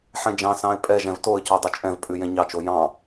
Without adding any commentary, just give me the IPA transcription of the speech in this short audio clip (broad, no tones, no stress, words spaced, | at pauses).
ħɛ̃d͡ʒɑ̃sɑ̃ɪ̯ pʼɛʒɛ̃v toə̯co dˤɵt͡ʃʼɛ̃vpʼʉ jɛ̃ɲɑt͡ʃo jɑ̃